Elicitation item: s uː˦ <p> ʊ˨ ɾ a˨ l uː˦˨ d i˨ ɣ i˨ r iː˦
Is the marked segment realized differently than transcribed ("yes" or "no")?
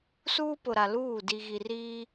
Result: no